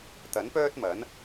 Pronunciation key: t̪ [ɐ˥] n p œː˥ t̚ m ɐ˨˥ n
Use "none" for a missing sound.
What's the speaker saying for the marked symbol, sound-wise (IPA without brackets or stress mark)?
ɐ˨˥